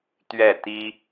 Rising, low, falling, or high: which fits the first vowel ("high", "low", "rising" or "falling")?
falling